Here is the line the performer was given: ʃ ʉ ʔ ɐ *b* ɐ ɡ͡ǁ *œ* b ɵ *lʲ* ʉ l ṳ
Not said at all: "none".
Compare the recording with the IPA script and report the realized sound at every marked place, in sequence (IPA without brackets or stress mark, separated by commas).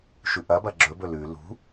b, ɵ, l